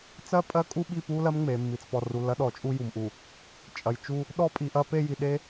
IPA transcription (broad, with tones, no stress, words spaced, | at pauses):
t͡sɜ˦˨pʼɜ˦ kʼu˦ɓi˦˨pu˦lɜ˦m ŋ͡me˨mːi˨t͡spɔ˨ ru˨lːɐ˦ɗɔ˨˦t͡ʃʼu˦ ju˨mʔu˨ | t͡ʃʼɐ˨j t͡ʃu˦ | ɗɔ˦ pʼi˨ʔɐ˦pe˦ji˨ ɗe˦